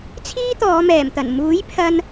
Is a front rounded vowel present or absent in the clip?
absent